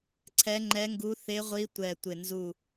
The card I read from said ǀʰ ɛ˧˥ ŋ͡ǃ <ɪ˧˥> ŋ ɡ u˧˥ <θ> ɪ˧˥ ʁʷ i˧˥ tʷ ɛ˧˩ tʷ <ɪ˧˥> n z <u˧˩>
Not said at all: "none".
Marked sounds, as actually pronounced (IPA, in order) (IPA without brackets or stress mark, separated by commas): ɛ˧˥, θ, ɪ˧˩, u˧˩